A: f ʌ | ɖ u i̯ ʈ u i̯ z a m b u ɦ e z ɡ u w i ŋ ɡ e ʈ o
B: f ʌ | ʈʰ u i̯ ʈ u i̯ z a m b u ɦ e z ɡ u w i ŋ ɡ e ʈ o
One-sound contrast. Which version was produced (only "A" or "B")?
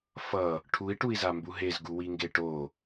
B